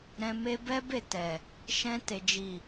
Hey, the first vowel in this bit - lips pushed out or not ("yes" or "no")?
no